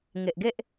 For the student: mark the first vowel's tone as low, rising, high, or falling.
low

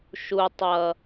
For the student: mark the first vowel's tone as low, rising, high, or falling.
low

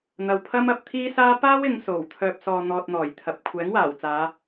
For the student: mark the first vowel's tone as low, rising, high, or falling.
low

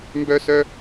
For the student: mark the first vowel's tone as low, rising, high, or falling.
high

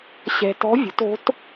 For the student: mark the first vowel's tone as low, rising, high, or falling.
low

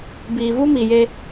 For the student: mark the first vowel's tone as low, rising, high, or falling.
low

